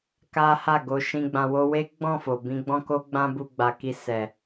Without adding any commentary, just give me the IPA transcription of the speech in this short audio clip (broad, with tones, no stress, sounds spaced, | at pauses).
k a˦ h a˦˨ ɡ o˧ ʃ ĩ˧ ɡ͡b ã˧ w o˧ w e˦ ɡ͡b ɔ̃˦˨ f o˨ b ĩ˧ ɡ͡b ɔ̃˦ k o˦ ɡ͡b ã˦ b u˧ ɡ͡b a˨ k i˧ s ɛ˨